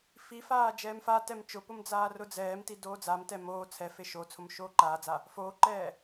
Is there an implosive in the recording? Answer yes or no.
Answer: no